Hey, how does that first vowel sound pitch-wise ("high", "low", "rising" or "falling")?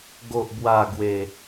low